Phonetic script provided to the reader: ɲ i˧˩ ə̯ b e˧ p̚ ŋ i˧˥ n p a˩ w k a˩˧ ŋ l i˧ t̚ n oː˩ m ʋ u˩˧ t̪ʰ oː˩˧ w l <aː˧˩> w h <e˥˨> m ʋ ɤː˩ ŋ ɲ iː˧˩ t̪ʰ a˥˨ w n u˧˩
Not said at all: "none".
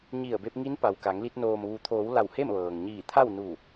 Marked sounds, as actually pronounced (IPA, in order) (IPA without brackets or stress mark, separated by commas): a˧˩, e˥˨